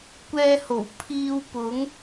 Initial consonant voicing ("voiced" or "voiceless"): voiceless